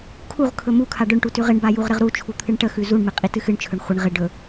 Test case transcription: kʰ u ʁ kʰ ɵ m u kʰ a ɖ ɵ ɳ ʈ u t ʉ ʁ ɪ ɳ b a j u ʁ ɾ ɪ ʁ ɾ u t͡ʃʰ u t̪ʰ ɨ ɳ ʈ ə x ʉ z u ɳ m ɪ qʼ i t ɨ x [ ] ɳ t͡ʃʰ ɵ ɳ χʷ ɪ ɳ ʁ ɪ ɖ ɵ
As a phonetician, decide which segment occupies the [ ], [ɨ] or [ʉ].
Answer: ɨ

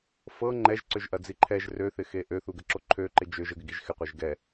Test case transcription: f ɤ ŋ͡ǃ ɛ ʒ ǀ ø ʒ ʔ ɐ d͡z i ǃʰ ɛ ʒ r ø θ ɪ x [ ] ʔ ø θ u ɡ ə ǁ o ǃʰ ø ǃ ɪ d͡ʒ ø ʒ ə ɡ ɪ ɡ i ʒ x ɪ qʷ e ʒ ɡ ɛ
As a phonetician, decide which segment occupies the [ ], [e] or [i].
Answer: e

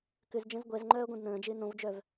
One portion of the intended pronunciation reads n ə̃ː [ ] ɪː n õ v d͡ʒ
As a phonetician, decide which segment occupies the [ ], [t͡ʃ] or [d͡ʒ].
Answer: d͡ʒ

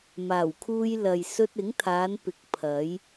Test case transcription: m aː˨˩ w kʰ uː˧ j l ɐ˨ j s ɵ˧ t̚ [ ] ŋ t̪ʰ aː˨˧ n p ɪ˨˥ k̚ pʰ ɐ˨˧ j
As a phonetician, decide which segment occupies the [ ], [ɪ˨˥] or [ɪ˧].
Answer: ɪ˨˥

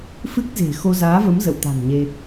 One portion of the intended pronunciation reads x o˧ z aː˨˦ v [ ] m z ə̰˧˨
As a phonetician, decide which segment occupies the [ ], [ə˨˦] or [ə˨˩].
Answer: ə˨˦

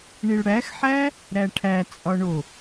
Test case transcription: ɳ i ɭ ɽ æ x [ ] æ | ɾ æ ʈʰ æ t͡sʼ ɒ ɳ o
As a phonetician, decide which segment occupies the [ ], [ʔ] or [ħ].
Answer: ħ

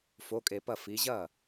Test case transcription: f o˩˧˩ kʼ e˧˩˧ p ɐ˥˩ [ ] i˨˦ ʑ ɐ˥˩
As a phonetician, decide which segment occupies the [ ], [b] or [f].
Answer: f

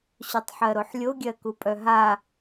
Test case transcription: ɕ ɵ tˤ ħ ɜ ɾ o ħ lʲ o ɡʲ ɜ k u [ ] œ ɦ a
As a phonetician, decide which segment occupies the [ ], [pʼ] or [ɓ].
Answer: pʼ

